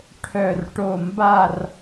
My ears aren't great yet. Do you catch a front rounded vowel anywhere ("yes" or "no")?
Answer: yes